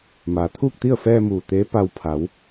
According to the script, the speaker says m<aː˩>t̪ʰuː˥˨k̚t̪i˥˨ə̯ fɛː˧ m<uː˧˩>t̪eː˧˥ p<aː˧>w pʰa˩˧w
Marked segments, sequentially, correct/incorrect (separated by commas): correct, correct, incorrect